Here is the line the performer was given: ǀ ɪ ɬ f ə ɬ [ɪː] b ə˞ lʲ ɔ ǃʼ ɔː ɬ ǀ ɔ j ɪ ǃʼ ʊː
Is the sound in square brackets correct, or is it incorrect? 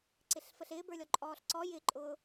correct